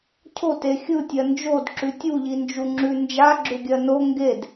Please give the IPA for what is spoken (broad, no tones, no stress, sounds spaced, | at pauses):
cʰ o t e xʲ ɯ tʲ ɜ n d͡ʒ o d ǁ ʉ tʲ u ʎ i n d͡ʒ u ŋ͡ǁ ʉ n d͡ʒ a ɡ͡ǁ ʏ ɡʲ ɜ n o ŋ ɡ e d